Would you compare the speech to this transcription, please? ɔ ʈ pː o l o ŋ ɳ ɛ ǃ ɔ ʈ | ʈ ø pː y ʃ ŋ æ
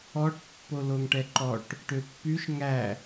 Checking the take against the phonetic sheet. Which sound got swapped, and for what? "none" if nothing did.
ɳ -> ʈ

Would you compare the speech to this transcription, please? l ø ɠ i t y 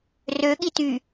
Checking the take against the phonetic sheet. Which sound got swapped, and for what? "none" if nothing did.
l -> r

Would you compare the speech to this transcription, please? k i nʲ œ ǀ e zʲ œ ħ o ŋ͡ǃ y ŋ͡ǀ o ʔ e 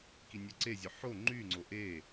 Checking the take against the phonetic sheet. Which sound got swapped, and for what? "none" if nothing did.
none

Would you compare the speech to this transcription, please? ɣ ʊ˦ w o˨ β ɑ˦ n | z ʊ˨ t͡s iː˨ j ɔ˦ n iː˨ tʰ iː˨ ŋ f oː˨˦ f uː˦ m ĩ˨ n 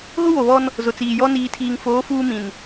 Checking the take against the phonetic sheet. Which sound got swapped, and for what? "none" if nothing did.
ɑ˦ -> ɔ˦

